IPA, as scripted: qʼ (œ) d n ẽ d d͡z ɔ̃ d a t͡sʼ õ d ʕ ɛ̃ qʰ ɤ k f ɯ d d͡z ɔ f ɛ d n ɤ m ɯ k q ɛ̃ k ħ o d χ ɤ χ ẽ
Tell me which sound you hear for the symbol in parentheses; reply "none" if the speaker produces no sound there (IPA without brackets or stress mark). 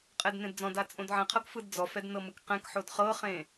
ɛ